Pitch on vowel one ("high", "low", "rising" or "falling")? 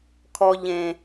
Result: low